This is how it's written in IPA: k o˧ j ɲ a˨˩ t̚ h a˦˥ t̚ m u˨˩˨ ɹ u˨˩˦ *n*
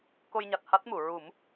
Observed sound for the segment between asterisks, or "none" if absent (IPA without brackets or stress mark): m